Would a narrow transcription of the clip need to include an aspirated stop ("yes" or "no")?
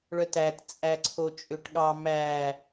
yes